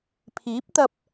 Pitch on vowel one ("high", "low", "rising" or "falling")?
rising